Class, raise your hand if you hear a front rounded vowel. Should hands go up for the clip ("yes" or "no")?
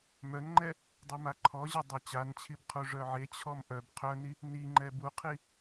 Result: yes